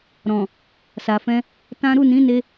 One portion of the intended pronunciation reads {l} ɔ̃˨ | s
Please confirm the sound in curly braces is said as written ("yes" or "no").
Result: no